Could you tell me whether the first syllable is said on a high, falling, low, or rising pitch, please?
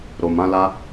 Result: low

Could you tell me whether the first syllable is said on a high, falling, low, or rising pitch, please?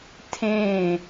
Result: falling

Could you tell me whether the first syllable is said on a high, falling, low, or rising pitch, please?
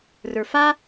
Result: low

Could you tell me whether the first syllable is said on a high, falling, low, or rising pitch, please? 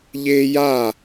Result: high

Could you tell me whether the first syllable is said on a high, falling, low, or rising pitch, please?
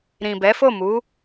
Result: low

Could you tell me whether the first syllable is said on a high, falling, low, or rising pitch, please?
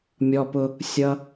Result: low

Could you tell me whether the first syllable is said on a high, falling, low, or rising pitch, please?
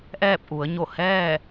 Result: falling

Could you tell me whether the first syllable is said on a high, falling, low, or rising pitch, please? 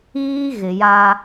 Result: high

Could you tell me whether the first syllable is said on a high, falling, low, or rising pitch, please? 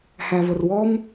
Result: low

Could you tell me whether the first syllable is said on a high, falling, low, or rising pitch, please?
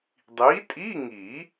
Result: rising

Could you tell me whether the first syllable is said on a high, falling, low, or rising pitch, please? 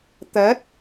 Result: rising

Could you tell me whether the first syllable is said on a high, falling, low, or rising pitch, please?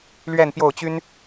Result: falling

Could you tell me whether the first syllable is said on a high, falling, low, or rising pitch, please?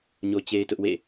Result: high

